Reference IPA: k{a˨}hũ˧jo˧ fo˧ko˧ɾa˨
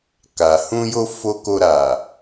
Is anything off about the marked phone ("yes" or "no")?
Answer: no